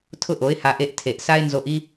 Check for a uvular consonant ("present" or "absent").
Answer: absent